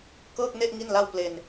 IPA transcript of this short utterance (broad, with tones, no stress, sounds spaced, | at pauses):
k ɤː˥˩ k̚ n e˥˩ ʔ ŋ i˥˩ n l a˥˩ w p l e˧ n